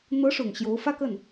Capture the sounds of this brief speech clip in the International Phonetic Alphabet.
n̪ɤ˧˥ ʂʊ˨˩ŋɕjo˧˥ʊ̯ fä˥kə˥˩n

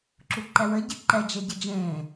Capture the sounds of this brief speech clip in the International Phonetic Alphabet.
ǁuǃɛwə ɟɘǃɛ d͡ʒɛɟəd͡ʒẽː

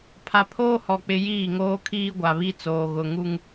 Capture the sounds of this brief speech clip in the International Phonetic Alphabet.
pʰa˨ pʰoː˦hɔ˨k͡pɪ˨ jiː˦˨ŋoː˦kʰiː˦ ɡʷa˨βi˦t͡soː˨ ɣʊ˨ ŋu˦ŋ

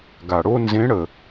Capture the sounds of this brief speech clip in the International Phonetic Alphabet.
ɡa˩ɽo˥ nzẽ˧˥ɽə˩

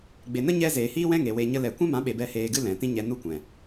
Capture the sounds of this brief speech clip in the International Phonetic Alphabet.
ɡ͡be˨nə˦ɲɛ˧ zeː˨hiː˦wɛ̃˦ŋe˨ we˧ɲə˦ lɛ˨ kʷɛ̃˦mã˨˦ɓe˨ bɛ˧ heː˧ɡɨ˦lɛ̃˨tĩ˦ ɲɛ˧nu˦kʷɛ̃˨

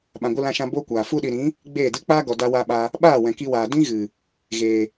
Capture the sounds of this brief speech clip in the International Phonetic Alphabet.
ɓã˨ɡʷɨ˧lã˧ʃã˧ boː˦kʷaː˨ fu˧ɗi˨ɾĩ˨˦ | ɡ͡beː˦˨dɨ˦ k͡paː˧ɡɔ˨ da˧wa˧ɓa˧ | ɓaː˦˨wɛ̃˨ki˧waː˨ dĩ˦ɣɨ˨ | ɣeː˨

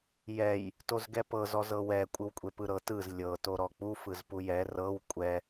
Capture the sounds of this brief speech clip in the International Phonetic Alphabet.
jɛj | tozɡɛpɤ zɔzɤwɛ kʷʼɯwkʷʼepɯɾɤ tɯz lʲɤ toɾɔk͡pu fɯzpujɛ rɤw kʷʼɛ

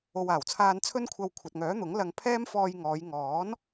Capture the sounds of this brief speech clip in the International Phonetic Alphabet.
o˨waː˨˩wt͡sʰaː˧n t͡sʰɵ˥nkʷʰɐ˧w kʷʰɐ˨t̚ŋœː˨˥n̪ʊ˨˥ŋ lɐ˧ŋ pʰɛː˥mfɔː˧jŋɔː˨˧j ŋɔː˨˥n

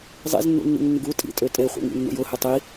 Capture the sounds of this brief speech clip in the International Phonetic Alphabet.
zˤḛznːṵnːḭŋnːɪɡ u tʼḭtʼø tʼeχʷḛŋḭnːṵj ʊhʏ tˤi

